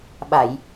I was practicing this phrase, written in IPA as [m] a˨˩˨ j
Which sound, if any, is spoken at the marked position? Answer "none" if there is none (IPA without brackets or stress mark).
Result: ɓ